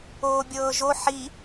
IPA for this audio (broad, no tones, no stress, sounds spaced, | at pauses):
oː bʲ ɤː ʒ o ħ i